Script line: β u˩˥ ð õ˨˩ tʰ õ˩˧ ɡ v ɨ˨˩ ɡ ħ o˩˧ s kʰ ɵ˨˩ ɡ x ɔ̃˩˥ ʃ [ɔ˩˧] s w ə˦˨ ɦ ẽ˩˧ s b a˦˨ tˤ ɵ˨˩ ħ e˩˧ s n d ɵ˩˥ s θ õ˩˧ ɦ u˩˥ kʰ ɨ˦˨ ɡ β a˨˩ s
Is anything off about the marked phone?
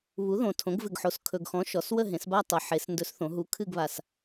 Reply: no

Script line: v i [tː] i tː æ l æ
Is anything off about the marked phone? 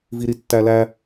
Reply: yes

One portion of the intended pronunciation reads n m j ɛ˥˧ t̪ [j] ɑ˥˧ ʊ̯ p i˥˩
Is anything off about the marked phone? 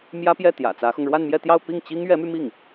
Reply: no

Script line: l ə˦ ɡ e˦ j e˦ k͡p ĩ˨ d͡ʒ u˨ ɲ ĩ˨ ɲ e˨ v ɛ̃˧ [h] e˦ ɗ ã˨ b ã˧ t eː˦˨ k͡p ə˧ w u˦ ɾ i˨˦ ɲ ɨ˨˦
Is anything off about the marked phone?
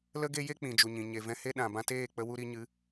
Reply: no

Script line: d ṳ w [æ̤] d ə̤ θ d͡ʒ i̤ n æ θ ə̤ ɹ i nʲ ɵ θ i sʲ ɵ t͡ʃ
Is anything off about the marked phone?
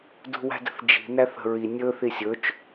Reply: no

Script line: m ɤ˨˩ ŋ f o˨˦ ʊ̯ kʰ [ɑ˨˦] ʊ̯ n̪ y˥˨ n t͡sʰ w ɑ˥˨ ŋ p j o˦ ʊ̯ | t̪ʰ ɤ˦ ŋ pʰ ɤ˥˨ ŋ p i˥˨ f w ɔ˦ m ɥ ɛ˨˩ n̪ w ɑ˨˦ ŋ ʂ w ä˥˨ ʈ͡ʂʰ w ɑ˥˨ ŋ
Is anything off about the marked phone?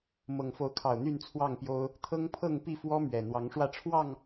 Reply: yes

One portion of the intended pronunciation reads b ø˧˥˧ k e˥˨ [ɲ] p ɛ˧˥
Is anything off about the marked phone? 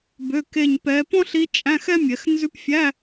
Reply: no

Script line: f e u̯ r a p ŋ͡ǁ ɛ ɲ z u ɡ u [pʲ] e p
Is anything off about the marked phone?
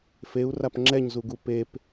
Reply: yes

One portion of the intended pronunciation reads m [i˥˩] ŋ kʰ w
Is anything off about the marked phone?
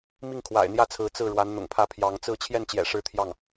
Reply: no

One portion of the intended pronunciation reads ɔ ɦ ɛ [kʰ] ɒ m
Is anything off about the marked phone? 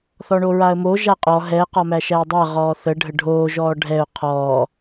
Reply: yes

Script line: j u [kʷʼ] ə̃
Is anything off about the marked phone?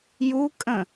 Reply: yes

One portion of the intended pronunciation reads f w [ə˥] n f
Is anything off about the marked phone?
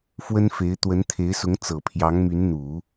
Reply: no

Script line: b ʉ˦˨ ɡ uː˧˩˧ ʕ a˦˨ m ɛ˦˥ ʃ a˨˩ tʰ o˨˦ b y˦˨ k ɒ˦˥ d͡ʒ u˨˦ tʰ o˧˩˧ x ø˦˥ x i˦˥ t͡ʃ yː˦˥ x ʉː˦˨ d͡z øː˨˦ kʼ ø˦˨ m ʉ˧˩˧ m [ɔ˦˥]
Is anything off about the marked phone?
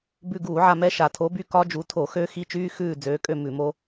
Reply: yes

